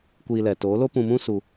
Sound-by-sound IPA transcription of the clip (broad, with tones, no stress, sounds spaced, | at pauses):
kʷ iː˧ l ɛ˨ t oː˨˦ l o˦ p ũ˧ m ũ˦ s u˧